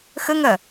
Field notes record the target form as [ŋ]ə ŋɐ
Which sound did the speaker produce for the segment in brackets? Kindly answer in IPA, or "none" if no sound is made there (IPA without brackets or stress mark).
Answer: x